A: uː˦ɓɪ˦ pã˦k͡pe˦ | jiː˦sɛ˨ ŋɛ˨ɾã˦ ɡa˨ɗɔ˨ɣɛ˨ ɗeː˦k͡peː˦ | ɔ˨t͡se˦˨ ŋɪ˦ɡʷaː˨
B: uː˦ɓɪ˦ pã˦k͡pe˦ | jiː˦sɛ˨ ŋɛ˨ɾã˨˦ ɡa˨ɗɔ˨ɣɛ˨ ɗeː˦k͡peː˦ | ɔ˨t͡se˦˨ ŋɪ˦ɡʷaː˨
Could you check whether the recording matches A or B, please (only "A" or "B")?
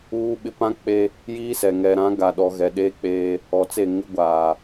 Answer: B